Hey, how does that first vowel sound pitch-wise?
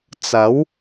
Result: rising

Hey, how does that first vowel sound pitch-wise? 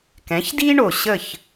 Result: rising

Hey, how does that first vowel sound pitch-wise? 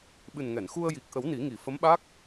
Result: low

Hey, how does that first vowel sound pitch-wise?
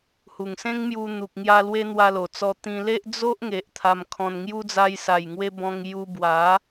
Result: low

